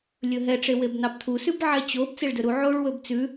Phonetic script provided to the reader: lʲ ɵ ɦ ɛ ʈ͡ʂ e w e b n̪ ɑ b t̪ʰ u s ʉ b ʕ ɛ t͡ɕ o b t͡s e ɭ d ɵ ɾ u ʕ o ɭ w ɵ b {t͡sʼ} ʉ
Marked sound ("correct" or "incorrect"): incorrect